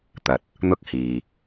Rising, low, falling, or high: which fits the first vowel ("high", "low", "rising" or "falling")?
low